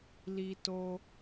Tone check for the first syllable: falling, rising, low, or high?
high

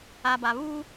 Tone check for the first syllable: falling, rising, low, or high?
low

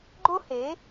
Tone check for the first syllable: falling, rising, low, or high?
high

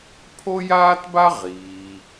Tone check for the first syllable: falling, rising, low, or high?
high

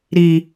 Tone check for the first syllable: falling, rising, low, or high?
low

